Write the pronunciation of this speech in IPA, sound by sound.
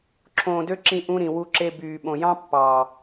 ǁʰ õː˨ d ø˧ ǁ ĩ˧ ʔ ũ˧ ɾ ĩ˨ w u˧ ǁ e˧ b yː˨ ɓ õ˨ j ɑ̃˦ pː ɑː˨

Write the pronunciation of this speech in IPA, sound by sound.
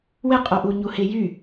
w ɪ qʼ o ʔ u ɲ u h ɪ j y

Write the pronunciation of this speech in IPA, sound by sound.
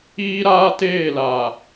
iː˦ ɾ aː˦ t eː˦˨ l a˨

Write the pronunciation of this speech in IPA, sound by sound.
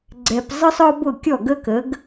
ɡ͡ǀ ɛ˧ p zˤ ɯ˥ sˤ ɔ˥ b ʊ˥˩ kʲ ɔ˥˩ ɡ ə˥ k ə˩˥ ɡ

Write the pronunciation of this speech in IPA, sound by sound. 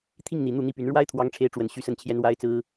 t̪ʰ i˥˩ ŋ n̪ i˨˩ n̪ u˥˩ n̪ i˥ p y˧˥ n ɻ w a˥ ɪ̯ t̪ʰ w ɑ˧˥ ŋ ʈ͡ʂʰ e˧˥ ɪ̯ ʈ͡ʂ w ə˨˩ n ɕ y˥ s ə˥˩ n t͡ɕʰ j ɛ˥ n w a˥ ɪ̯ t͡s ɹ̩˥

